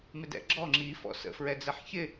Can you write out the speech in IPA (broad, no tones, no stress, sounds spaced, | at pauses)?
m ɪ d ɛ̰ ɡ͡ǁ ɔ ŋ͡ǁ i f ɔ̰ s ə̰ f ɹ ɛ d͡z ɛ ħ ç ɪ